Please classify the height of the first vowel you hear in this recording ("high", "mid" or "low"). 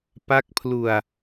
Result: low